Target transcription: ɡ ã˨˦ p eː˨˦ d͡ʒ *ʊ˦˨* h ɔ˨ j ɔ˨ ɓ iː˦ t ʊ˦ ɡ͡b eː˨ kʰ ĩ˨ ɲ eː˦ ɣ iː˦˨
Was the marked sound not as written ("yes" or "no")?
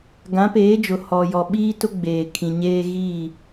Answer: yes